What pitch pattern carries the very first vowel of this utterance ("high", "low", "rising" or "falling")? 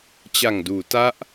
low